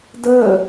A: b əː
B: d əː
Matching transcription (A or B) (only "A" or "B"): B